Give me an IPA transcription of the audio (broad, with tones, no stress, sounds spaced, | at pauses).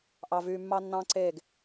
ʔ ɑ˨ v yː˨ mː ɑ˦ nː ɑ̃ː˦ ǀ eː˦˨ ɡ